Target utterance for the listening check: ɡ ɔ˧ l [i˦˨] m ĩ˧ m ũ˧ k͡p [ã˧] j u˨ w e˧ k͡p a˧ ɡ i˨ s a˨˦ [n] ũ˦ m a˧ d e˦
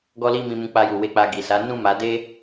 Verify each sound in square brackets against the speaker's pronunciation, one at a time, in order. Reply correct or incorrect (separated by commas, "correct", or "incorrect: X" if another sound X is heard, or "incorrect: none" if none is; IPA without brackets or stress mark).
incorrect: i˧, incorrect: a˧, correct